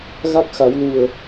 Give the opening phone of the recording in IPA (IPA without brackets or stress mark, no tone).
ɣ